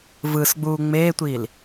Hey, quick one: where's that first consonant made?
lips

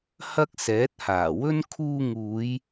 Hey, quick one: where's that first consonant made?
throat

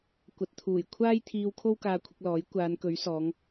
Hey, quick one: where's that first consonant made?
velum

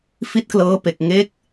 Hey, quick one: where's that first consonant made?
lips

